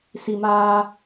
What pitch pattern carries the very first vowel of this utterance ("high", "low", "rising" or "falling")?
low